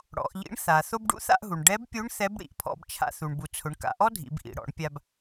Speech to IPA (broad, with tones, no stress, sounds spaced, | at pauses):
ɽ ɔ̰˩˧ ʔ ʎ ḭ˧˥ ɳ θ a˩ θ o˧ b ɖ ṵ˧˥ θ a̰˧ ʔ ɦ u˩ ɳ ɖ ɛ˧˥ b pʲ u˧˥ ɳ θ ɛ˧˥ b ɽ ḭ˩ ʔ pʰ ɔ̰˧ b t͡ʃʰ a̰˧ θ u˩ ɳ b u˩ t͡sʰ ʊ˩˧ ɳ k a̰˩˧ ʔ ɔ˥ dʱ ḭ˩˧ b ʔ ḭ˩ ɽ ɔ̰˩˧ ɳ pʲ a˧ b